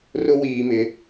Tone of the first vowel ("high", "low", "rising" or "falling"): high